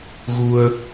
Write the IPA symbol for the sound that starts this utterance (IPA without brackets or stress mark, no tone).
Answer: ɣ